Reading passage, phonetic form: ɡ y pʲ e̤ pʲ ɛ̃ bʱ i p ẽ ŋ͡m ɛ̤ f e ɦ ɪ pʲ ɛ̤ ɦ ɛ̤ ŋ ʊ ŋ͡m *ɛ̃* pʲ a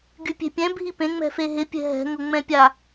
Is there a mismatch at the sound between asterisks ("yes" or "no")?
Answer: no